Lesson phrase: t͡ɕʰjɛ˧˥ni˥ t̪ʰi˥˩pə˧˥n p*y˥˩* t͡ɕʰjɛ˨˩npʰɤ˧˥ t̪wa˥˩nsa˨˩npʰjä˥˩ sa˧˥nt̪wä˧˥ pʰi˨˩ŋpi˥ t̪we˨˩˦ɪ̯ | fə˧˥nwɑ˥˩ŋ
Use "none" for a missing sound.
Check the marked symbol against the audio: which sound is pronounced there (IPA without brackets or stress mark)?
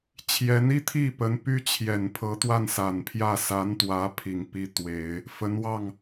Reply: y˥